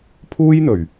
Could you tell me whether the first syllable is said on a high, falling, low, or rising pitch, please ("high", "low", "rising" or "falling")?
high